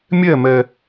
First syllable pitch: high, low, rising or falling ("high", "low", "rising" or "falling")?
falling